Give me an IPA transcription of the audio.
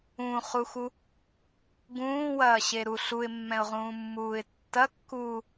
ũ χ u x u | ɡ ũː w ɐː ɕ e ɾ u ɬ u ɪ̯ mː ɛ̃ ʊ̯ ʁ ũː mː uː ɪ̯ tː ɐ kː uː

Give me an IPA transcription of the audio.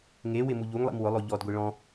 ŋ e w ɪ m u ʎ u ŋ lˠ ḭ m w ʊ lˠ o ʎ ɔ d ɡʷ i ɭ ɔ̃

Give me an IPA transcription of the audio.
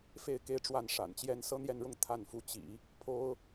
f e˥˧ ɪ̯ k e˥˧ ɪ̯ ʈ͡ʂ w a˥˩ n ʂ a̰˨˩ n t͡ɕ j ɛ˥ n s ɤ˥ n̪ j ɛ˥˧ n ɻ ʊ˥˧ ŋ t̪ʰ a˥˩ n f u˧˥ t͡ɕ ḭ˨˩˦ | pʰ o˥ ʊ̯

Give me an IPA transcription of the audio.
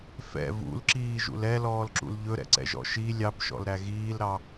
f ɛ̰ v ṵ l ǁ iː ʒ ṵ l ɛ l ɔː l ǁ ṵ l ʎ ɵ ɾ ɛ̰ ǀ ɛ̰ ʒ ɔ̰ ʃ i lʲ ɑ p ʃ ɔ̰ l ɾ æ ɣ iː l ɾ ɑ

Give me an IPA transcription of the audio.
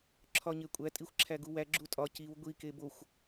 ǁʰ ɒ ɲ e kʷʼ æ tʼ i xʷ ǁʰ æ ɡ u w æ ɡ͡ǁ u tʼ ɒ c i w ɡʷ i k e b o xʷ

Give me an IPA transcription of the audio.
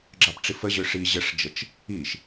ɡ͡ǁ ɑ p ʈ͡ʂ i f ə ʑ ø ʂ i ʑ ə ʂ d͡ʒ ə t͡ʃ | i ʃ

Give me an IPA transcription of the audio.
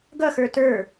ɡ ʌ x ə˞ t ə˞

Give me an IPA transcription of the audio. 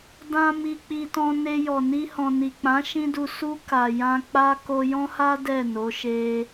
d ã˦ m i˧ k͡p i˧ t ɔ̃˧ n e˧ j ɔ˨ n i˧ h ɔ̃˨ n i˨ k͡p ã˨˦ ʃ ĩ˦ d u˧ s u˧ k a˨ j ã˧ k͡p a˦ k o˧ j ɔ̃˦ h a˦ d ɛ˦˨ n o˨˦ ʃ e˧

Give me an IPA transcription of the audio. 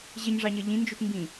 ʑ ɪ ɲ ʐ ɑ ɲ ʌ ʎ ĩ n d͡ʒ u t m b ĩ

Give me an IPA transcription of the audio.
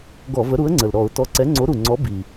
ɡ ɔ˧˩˧ v ə˨˥ ɾ u˨˥ ə̯ ŋ͡ǀ ə˨˩ l ɾ ɔ˧˩˧ ʊ̯ t ɔ˨˥ ǀ ɛ˨˥ ŋ͡ǀ o˨˥ ɾ u˨˩ ŋ͡ǀ ɔ˨˥ b i˨˩

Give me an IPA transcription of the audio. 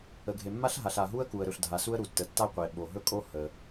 ə˩ ɡʱ e˩ mː a˥ ɬ ɦ a˩ ɬ a˩ ɦ u˥ ə̯ k u˩ ə̯ ɾ ɵ˩ ɬ dʱ a˩ s u˥ ə̯ ɾ u˩ tː ə˩ tː a˥ qʷ e˩ ɓ o˩ ɦ ɵ˥ kʼ o˥ h ə˩

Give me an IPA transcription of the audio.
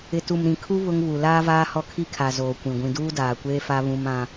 ɪ˨ t u˨ m ɾ ĩ˨ kʰ u˦ β ʊ˦ ŋ β u˨ l aː˦ v aː˦ h ɔ˦ kʰ i˦ kʰ a˨ z oː˨ kʷ ĩ˨ ɡʷ ĩ˨ d uː˦ d aː˨ kʷ eː˦ f a˦ β ũ˦ m ã˦

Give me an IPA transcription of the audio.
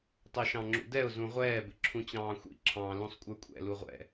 tˤ ɛ ʃ ɑ̃ ŋ͡ǁ ṵ d ɛ ʊ̯ z ũ ʁʷ ɛː b ɪ ǁʰ ũ t͡ɕ ɑ̃ː xʷ ḭ ǁʰ ɑ̃ l ũ sˤ kʷʼ ə˞ kʷʼ ɛ̰ l u ʁʷ ɛ̰

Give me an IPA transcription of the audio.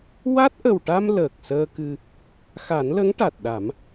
w a˦˥ t̚ ʔ ə˨˩ w ʈ a˧ m l əː˨˩ k̚ s əː˧ k ɨ˧ | x a˨˩˦ n l ə˧˥ ŋ ʈ a˨˩ t̚ ɗ a˨˩˦ m

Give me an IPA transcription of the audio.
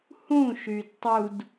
h ũ ʃ y d tˤ u d

